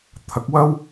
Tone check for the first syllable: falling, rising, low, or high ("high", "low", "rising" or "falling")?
rising